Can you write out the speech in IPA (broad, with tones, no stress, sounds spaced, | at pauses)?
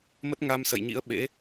m ə˦˥ t̚ ŋ a˧ m s ə̰˧˨ j ɲ ḭ˧˥ ə̯ ɓ ḛ˧˥